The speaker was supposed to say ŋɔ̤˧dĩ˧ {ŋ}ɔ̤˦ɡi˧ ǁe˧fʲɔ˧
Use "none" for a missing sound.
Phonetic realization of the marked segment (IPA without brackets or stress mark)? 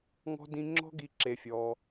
ŋ͡ǁ